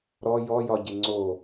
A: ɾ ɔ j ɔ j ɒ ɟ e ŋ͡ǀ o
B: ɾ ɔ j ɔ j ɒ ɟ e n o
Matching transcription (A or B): A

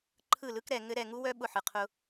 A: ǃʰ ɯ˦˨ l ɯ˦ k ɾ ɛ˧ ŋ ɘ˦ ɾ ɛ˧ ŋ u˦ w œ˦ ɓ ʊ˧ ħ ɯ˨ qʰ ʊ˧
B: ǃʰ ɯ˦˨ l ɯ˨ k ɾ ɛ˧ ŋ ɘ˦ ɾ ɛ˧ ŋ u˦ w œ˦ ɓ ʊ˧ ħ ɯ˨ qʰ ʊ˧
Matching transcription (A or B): A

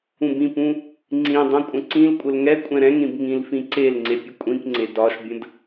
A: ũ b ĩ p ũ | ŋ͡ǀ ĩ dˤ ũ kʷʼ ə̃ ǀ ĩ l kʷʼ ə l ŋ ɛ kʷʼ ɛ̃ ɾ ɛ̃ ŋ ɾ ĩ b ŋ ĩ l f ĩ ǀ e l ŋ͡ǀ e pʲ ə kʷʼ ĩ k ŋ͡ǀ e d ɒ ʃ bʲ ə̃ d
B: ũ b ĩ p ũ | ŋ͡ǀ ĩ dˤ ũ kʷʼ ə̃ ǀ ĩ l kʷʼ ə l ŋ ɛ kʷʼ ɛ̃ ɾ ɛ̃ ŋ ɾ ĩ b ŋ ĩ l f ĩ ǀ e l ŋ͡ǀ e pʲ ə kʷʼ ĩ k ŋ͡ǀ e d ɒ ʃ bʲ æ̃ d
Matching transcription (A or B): A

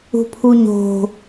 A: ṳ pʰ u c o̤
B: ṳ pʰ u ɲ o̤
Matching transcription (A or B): B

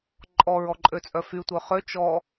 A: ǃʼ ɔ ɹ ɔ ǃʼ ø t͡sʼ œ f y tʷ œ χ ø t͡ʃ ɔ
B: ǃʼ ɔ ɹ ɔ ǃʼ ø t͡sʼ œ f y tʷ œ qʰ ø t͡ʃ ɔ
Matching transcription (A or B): A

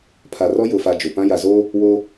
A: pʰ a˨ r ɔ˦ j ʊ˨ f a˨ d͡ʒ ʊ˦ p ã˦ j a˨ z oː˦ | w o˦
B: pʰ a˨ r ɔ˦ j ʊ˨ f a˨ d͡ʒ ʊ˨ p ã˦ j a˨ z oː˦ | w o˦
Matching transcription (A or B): B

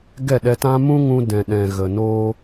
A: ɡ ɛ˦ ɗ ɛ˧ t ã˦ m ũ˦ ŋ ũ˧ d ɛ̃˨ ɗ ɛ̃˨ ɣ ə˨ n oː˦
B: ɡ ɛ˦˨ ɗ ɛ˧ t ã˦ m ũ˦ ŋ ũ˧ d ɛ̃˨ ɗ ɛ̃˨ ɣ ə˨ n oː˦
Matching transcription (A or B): B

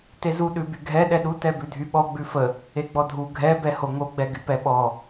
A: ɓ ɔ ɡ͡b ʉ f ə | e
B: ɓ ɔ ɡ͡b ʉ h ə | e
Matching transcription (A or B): A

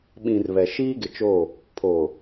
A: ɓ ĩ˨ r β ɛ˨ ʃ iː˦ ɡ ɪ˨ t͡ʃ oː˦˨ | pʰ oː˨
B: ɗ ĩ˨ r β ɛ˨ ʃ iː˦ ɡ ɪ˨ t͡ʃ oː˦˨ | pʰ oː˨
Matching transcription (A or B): A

